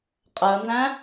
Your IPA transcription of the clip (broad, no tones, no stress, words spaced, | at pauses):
qʼəːnzæ̃